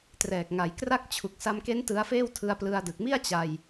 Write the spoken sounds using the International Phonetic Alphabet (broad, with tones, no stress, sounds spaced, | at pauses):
t r ɛː˨˩ k̚ ŋ a˩˦ j k r a˥˩ k̚ t͡ɕʰ u˨˩ k̚ s a˧ m k e˦˥ n t ɯ˦˥ a̯ f eː˥˩ w tʰ ɯ˧ a̯ p l ɯ˧ a̯ d ɯ˨˩ k̚ m i˥˩ a̯ t͡ɕ a˧ j